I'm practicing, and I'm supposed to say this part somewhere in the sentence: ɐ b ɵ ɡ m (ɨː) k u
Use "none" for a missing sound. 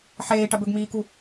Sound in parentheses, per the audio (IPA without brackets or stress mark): iː